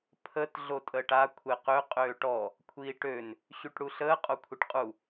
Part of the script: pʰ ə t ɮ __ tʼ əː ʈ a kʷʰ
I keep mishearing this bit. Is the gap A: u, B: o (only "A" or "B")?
B